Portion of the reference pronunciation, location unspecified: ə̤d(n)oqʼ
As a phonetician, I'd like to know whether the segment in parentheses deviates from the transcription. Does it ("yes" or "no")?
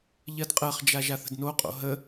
no